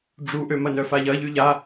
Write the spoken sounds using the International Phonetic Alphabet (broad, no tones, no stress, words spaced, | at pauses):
ɖ͡ʐuʔømɐnœ faʎɐʎy ʎa